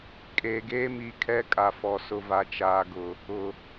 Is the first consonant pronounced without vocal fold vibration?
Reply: yes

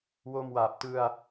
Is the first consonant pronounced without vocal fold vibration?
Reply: no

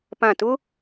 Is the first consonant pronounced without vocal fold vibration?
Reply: yes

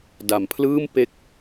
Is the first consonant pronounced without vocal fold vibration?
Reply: no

